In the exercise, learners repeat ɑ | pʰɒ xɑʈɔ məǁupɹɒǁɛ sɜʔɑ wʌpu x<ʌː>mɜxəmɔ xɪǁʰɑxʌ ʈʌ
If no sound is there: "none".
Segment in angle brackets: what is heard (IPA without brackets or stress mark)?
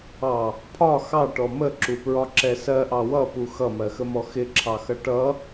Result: ʌ